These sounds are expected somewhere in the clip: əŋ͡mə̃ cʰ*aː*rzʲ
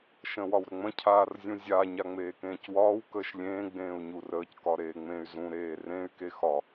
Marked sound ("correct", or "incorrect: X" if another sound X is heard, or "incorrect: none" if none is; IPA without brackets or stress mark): correct